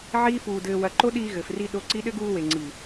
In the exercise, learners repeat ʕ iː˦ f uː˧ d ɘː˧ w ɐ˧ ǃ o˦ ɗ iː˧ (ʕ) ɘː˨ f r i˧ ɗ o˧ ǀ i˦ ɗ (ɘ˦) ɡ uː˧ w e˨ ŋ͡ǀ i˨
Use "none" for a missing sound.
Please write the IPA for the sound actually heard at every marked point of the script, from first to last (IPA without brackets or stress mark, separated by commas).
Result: ɣ, ɘ˦